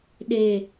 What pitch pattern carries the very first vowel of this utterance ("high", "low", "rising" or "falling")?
low